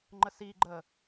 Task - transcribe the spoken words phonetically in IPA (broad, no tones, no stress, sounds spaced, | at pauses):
ŋ͡ǃ ə s iː ɡ͡ǃ əː